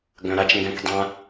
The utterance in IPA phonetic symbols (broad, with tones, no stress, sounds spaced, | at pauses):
ɡ œ̃˨ ɾ a˧ t͡ʃ ŋ ɡ ɛ̃˦ kʷ dˤ ã˦